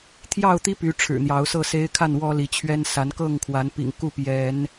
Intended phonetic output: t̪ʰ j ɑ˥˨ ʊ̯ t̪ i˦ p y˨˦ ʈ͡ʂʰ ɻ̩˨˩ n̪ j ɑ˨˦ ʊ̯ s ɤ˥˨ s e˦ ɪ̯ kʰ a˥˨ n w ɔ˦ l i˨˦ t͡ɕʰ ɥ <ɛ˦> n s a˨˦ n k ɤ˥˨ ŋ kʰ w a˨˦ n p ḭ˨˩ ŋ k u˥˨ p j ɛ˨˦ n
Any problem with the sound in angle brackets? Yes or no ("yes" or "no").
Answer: no